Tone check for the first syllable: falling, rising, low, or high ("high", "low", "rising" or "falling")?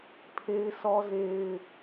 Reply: high